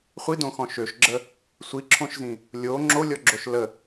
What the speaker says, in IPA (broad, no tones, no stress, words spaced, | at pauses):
χʷidõxɔ̃ ʃøʃɡ͡ǁə | sʷiǁʰõʃzĩ | lʲo ŋ͡ǁolʲɔɡ͡ǁoʃ lə